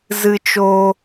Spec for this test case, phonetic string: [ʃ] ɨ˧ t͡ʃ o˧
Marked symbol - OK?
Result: no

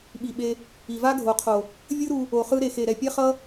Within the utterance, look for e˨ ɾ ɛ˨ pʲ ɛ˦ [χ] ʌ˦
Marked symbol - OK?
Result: yes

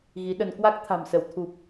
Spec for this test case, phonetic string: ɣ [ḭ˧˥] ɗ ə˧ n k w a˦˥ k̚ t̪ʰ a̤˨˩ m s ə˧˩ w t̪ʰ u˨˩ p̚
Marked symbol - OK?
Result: no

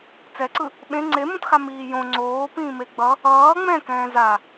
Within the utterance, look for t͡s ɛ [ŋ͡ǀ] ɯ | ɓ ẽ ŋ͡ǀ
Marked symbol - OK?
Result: no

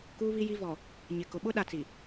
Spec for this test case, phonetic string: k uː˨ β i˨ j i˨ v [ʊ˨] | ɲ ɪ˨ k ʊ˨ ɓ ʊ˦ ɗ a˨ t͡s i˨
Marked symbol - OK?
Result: no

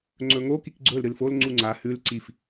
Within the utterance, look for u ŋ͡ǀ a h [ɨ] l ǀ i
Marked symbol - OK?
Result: no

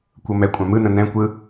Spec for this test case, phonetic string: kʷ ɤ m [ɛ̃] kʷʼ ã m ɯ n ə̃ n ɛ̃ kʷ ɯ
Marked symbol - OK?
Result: no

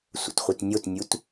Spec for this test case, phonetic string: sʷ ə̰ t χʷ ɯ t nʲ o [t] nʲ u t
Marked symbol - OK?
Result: yes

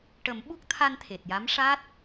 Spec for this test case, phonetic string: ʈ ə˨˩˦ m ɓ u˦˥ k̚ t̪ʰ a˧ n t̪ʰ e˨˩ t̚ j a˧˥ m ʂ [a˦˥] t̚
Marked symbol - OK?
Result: yes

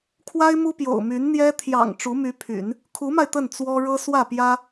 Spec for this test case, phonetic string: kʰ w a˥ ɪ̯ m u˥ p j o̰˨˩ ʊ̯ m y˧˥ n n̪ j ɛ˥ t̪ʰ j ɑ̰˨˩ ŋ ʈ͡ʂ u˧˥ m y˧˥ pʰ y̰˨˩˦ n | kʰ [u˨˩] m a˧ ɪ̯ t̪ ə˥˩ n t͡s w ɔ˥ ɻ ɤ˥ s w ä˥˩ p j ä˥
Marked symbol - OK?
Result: no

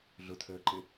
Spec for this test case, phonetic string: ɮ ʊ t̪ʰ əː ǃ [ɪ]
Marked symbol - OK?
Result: yes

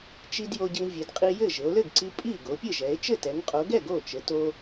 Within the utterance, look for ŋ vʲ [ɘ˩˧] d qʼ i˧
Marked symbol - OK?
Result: yes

